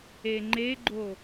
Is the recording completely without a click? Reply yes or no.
no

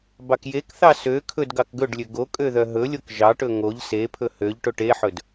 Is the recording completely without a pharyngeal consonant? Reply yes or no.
no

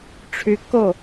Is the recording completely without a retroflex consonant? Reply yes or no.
no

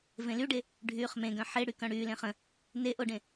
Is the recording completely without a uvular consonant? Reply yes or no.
no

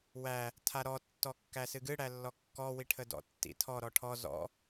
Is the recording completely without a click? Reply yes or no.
yes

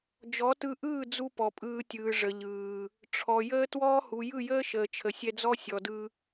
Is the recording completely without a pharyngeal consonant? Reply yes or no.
yes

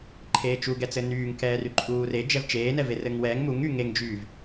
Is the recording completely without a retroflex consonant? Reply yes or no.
yes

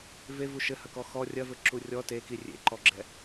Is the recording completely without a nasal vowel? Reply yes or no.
yes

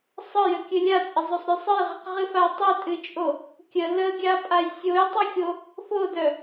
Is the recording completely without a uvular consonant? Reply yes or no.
no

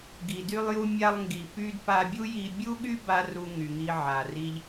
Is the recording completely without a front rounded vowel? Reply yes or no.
no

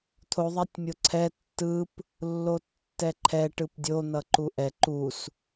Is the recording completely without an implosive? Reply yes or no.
yes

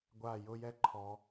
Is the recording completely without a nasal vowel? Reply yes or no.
yes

